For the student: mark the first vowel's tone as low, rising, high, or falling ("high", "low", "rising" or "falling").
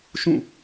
falling